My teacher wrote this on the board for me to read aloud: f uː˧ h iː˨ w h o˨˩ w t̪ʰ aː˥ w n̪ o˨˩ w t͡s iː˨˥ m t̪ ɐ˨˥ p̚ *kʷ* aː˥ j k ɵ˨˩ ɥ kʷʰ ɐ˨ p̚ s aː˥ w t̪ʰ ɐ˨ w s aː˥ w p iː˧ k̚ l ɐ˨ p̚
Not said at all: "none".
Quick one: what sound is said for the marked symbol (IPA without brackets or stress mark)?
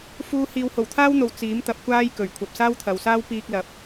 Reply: kʷ